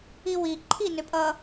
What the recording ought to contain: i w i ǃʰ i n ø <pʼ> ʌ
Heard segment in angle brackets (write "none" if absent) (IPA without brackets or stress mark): pʼ